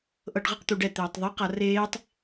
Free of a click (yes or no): yes